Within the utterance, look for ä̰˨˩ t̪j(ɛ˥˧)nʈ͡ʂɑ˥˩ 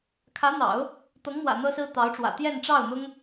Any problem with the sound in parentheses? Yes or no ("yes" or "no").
no